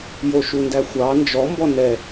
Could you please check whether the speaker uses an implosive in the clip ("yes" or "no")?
no